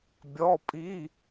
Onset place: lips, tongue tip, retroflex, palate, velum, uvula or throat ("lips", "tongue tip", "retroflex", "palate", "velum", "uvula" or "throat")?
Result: lips